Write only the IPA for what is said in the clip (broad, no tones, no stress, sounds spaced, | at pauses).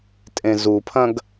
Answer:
tʼ ẽ z u pʰ ɐ̃ ɡ